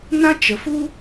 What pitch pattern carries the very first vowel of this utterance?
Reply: high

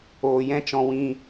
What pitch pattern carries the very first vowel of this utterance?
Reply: low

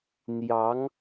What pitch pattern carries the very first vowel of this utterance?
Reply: rising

